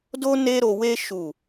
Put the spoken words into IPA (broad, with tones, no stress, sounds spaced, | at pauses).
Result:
d o˦ n e˦ ɾ o˧ w e˦ ʃ u˦˨